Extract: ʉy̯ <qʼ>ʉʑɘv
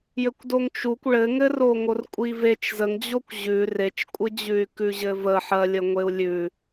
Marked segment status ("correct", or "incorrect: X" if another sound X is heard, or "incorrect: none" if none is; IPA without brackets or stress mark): incorrect: k